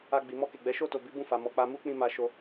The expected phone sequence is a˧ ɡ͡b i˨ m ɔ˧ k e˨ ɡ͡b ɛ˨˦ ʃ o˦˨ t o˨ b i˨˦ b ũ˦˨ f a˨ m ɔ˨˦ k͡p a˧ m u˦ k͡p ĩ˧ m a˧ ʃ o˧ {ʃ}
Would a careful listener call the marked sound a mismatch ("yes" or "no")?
yes